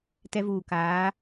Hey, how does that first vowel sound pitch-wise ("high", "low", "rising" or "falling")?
high